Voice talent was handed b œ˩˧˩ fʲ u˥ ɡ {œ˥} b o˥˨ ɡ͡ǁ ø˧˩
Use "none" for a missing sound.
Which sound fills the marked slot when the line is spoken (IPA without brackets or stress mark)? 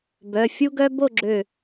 œ˥